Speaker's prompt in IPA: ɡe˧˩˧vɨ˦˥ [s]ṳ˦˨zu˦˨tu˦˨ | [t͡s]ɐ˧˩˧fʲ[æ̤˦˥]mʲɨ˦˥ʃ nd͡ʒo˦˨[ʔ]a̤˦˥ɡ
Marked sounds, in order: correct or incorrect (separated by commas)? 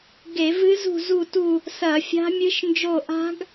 incorrect, incorrect, incorrect, correct